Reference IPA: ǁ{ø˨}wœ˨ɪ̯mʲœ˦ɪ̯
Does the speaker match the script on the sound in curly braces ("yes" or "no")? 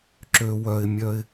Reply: yes